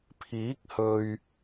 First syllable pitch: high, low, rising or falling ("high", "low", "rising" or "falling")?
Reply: rising